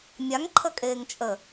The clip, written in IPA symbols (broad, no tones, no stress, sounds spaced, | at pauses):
mʲ a ŋ ǃʰ ə kʼ eː ŋ t͡ʃʼ ə